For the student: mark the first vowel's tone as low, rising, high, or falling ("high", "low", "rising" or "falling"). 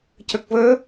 low